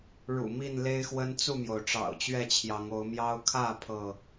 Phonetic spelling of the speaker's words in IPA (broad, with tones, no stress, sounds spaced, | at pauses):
ɻ ṵ˨˩ m i˥˨ n l e˦ ɪ̯ x w ə˦ n t͡s u˥˨ m j o˩ ʊ̯ ʈ͡ʂ ɑ̰˨˩ ʊ̯ t͡ɕ ɥ ɛ˥˨ t͡ɕʰ j ɑ˨˦ ŋ o˨˦ ʊ̯ m j ɑ˦ ʊ̯ kʰ ä˥˨ pʰ ɤ˥˨